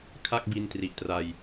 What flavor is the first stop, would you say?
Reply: aspirated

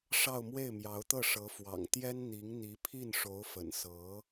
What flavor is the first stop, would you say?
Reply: plain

